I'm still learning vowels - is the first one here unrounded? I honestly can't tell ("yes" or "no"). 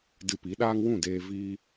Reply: yes